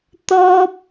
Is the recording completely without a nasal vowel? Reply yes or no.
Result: yes